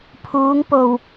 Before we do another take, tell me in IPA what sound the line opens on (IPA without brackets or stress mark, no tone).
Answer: pʰ